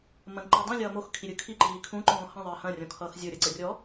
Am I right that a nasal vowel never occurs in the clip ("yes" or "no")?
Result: no